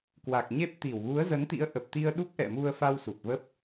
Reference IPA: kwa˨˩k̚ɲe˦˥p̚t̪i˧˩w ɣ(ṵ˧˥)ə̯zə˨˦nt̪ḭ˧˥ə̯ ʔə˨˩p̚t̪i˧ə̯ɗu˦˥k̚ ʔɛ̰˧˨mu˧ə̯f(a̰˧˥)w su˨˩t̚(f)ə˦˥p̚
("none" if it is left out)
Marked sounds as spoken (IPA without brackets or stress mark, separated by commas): u˨˦, a˧, v